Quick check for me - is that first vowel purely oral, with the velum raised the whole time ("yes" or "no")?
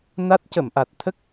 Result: yes